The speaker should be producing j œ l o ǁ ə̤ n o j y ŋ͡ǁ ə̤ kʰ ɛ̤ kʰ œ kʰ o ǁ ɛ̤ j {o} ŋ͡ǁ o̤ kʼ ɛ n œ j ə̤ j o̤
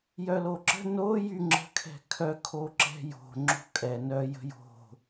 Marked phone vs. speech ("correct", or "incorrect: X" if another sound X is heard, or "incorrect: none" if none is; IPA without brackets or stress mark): incorrect: o̤